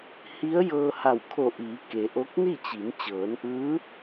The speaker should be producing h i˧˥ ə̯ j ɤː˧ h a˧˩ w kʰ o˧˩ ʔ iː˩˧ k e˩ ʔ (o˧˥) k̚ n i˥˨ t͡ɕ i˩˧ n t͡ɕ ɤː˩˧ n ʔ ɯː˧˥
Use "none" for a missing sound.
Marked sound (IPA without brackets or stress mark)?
o˧˥